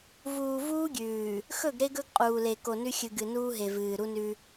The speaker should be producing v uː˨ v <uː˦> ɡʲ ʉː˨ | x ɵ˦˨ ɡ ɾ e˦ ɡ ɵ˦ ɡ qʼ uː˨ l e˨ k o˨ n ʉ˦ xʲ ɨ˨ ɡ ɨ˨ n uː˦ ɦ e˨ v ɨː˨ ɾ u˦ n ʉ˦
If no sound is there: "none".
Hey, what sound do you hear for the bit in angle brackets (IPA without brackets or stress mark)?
uː˦